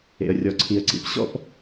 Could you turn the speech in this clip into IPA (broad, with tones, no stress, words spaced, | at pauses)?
ḛ˩ə̯rʲɔ˩ǀʰi˩ə̯ǀḭ˩p ɕɔ̰˥p